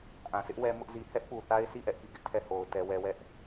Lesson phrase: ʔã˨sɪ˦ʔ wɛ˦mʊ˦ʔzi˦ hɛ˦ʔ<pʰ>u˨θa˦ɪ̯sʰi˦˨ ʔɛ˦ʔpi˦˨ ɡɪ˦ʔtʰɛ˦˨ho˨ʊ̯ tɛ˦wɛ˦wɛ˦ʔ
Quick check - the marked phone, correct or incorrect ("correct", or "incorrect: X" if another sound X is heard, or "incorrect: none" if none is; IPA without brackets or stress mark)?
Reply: incorrect: p